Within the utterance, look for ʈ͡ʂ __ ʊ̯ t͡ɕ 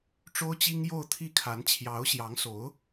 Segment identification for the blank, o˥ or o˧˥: o˥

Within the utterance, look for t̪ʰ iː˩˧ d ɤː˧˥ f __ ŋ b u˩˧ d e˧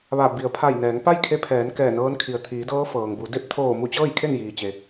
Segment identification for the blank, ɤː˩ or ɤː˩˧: ɤː˩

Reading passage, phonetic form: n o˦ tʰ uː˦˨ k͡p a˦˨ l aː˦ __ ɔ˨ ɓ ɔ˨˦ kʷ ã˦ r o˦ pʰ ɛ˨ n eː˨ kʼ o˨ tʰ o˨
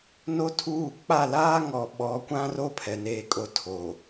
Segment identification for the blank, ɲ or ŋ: ŋ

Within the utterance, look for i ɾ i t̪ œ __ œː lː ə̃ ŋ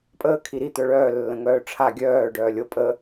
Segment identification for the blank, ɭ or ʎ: ɭ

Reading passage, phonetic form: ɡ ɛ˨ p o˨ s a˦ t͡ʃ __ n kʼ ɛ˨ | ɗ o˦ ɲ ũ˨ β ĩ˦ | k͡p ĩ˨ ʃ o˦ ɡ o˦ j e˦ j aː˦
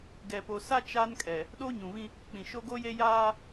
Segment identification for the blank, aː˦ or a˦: a˦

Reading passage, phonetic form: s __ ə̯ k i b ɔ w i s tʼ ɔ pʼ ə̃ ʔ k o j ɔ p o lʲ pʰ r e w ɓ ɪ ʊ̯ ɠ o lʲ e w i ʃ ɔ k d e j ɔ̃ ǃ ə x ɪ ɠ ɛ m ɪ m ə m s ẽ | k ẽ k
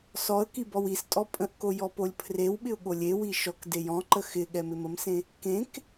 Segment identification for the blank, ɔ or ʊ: ɔ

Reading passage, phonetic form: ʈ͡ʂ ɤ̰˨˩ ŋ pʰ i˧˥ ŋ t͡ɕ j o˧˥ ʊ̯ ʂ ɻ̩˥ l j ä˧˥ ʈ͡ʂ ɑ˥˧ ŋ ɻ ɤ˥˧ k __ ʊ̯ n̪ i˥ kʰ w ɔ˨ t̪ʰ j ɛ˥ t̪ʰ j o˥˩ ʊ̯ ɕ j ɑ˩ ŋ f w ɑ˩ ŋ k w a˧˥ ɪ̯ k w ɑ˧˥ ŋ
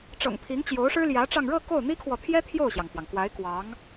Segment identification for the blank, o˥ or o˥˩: o˥˩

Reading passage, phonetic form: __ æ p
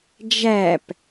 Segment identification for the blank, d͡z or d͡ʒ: d͡ʒ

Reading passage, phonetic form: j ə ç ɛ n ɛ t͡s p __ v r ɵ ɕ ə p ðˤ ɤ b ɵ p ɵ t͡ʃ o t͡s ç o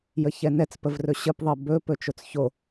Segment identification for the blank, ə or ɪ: ə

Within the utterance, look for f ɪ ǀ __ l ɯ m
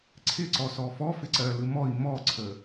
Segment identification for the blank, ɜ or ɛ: ɜ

